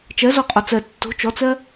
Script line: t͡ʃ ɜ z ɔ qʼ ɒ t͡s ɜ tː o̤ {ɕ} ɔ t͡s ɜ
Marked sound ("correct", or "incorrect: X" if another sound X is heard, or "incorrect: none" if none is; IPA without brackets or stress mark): incorrect: t͡ʃ